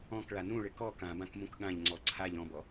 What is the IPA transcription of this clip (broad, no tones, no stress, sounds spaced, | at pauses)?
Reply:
ɔ̃ k ɭ a n ũ ɭ ɪ k ɔ k ã b ã k m ũ k ɠ ã ʎ ŋ͡ǀ ɔ ǀʰ a ʎ ɔ̃ b ɔ